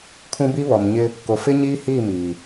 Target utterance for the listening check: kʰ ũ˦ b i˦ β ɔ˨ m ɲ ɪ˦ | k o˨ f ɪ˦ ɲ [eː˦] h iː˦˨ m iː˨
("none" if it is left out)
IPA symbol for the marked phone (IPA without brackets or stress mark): iː˦